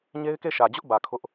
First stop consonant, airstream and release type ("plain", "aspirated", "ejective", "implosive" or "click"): plain